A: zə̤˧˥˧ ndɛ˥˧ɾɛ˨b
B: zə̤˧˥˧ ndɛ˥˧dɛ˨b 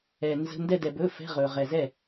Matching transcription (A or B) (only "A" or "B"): B